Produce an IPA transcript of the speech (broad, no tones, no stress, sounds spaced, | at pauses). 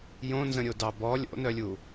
j õ n z ə̃ ɾʲ o d ɑ b ɔ lʲ o̰ n œ lʲ u